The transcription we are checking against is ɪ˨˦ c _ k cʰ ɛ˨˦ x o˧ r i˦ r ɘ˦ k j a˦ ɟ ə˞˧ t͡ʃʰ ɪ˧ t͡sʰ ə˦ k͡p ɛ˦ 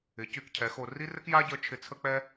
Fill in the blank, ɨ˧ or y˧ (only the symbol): y˧